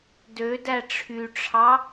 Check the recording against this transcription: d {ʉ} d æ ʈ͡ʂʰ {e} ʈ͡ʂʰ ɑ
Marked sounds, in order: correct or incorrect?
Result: incorrect: ø, incorrect: y

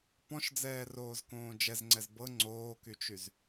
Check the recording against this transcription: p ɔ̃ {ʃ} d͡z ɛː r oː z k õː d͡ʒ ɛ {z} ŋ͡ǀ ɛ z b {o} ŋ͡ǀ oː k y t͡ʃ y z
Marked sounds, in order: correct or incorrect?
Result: correct, correct, incorrect: ɤ

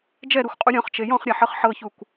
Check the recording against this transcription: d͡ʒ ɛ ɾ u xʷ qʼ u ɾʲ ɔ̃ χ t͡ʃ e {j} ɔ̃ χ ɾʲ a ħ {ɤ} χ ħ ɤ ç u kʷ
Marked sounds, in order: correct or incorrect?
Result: correct, correct

